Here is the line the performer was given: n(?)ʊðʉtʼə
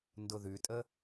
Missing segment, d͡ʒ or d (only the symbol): d